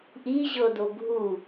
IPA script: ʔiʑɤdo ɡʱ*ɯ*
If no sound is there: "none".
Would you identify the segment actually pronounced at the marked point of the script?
u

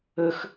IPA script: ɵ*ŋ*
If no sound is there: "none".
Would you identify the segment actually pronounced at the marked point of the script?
x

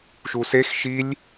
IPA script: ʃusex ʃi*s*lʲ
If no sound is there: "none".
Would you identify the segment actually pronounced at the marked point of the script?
none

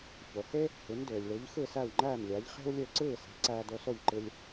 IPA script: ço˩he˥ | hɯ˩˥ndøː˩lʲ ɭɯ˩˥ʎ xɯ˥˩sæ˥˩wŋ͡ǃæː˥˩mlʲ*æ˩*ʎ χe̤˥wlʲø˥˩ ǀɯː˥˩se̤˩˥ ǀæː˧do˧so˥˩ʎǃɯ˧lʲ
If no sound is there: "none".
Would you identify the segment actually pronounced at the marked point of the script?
æ˩˥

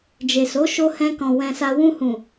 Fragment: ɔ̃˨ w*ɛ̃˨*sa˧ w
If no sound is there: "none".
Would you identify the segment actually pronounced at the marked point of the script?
ɛ̃˧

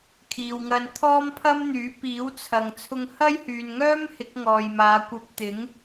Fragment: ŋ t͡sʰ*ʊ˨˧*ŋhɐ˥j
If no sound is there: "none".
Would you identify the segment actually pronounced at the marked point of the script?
ʊ˧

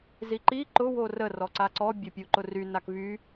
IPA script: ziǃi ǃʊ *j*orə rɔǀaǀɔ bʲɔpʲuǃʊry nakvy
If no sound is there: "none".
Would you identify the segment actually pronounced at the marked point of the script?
w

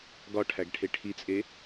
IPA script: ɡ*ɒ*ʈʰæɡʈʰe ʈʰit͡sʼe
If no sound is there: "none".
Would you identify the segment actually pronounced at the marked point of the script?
ɒ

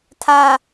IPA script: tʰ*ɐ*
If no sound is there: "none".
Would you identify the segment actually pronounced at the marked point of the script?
a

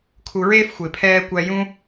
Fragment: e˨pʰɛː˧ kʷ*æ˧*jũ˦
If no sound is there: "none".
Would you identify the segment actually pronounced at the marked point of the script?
æ˧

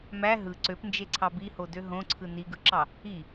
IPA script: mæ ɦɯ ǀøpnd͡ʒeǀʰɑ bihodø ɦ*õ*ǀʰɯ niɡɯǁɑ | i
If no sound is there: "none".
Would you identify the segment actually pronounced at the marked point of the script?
õ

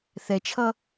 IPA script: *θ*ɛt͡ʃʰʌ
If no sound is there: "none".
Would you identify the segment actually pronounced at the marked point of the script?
θ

